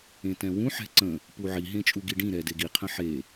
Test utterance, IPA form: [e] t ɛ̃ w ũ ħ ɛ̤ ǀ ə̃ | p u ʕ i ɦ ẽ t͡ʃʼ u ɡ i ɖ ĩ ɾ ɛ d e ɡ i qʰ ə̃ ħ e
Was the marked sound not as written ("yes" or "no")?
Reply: yes